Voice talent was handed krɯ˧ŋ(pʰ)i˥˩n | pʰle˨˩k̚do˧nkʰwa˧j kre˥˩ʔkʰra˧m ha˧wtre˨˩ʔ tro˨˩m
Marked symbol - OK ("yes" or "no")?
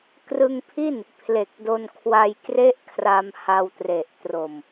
yes